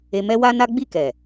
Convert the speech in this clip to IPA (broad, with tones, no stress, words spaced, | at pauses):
e˧mɛ˦wa˦na˦ ɡ͡bi˦˨kɛ˨